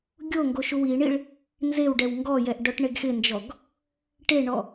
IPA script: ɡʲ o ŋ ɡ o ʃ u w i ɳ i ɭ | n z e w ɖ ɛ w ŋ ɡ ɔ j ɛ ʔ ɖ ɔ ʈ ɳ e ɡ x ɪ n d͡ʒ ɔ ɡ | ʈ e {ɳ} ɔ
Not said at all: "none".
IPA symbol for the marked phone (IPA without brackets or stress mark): ɳ